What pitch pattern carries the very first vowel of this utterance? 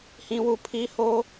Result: high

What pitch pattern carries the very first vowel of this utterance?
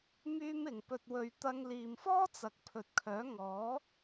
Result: high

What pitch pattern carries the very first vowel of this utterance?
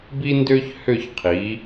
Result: high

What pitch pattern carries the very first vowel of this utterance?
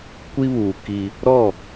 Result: high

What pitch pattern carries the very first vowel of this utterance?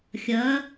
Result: rising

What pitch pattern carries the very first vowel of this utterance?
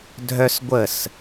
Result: high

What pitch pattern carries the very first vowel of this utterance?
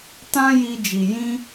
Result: high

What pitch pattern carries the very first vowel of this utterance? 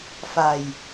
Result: low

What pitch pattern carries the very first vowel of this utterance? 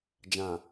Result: low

